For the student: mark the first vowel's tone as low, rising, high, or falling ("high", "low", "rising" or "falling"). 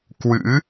rising